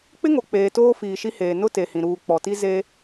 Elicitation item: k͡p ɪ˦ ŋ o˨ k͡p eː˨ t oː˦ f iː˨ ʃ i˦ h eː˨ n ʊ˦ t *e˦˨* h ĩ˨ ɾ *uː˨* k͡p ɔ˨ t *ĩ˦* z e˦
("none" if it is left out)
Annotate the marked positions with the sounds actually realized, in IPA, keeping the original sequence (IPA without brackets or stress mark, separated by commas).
e˨, uː˨, i˦